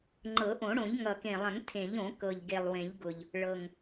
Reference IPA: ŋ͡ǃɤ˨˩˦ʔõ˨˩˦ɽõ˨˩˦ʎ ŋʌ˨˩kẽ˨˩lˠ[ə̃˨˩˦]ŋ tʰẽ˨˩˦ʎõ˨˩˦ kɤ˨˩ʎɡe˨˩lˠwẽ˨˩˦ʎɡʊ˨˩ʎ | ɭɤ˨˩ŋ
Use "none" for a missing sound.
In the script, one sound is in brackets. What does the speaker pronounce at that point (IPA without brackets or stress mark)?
ə̃˨˩˦